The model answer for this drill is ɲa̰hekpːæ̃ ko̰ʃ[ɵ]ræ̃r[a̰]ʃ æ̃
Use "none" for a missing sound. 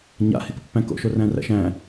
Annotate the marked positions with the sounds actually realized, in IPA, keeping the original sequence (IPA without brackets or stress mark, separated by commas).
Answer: o, æ̰